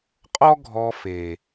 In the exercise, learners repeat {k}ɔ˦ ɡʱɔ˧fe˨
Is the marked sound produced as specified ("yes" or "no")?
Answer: no